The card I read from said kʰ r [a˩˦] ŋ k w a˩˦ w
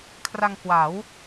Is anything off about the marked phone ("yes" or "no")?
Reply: yes